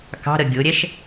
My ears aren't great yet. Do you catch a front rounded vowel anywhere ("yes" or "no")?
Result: no